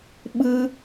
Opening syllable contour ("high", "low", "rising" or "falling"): high